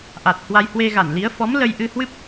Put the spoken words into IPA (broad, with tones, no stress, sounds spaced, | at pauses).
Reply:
ʔ a˨˩ t̚ h w a˧ j h w e˧ ɣ a˧˩ n l i˨˦ ə̯ f ɔ˨˦ m l ə˧ j ʔ ɨ˧ h w ɨ˦˥ p̚